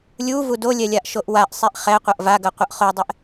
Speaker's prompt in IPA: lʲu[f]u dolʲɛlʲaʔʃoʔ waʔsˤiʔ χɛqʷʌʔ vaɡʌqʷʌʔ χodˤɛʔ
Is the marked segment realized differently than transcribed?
yes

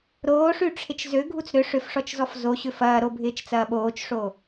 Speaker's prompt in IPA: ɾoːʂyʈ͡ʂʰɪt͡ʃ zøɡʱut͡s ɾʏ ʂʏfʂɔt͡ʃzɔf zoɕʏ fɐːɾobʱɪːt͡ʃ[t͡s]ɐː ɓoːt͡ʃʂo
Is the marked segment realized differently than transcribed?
no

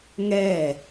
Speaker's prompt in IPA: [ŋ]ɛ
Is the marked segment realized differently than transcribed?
no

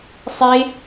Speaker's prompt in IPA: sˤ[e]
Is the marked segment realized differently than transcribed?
no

